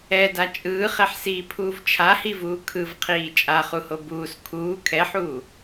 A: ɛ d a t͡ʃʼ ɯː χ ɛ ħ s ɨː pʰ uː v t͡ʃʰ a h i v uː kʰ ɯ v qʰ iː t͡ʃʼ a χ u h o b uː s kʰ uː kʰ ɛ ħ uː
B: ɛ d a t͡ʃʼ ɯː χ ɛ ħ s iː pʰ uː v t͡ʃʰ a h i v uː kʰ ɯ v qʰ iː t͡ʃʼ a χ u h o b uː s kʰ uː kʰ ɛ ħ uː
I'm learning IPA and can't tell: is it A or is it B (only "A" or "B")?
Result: B